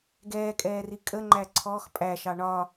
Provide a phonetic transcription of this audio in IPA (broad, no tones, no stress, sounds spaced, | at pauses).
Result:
ɡ ɛː kʼ ɛː r i kʼ ə ŋ͡ǃ æ ǀʰ ɔ x pʼ æ ʃ ɑ ɳ ɒ